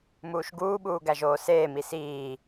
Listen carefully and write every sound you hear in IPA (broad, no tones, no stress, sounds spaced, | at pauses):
m uː ʃ ɡ uː ɓ uː ɡ æ ʒ oː s eː m i s iː